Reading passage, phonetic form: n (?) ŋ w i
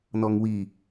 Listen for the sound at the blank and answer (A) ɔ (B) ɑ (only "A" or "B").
A